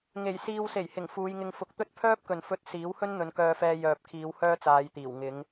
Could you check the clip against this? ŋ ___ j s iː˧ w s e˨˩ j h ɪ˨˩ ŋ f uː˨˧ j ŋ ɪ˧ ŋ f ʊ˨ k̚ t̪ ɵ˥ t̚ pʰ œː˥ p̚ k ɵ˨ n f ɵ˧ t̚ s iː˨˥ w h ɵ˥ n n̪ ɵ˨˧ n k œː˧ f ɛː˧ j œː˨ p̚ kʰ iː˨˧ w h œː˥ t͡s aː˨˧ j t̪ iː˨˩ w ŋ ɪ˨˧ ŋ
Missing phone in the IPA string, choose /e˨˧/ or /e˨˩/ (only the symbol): e˨˩